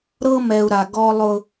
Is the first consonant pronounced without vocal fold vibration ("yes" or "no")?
no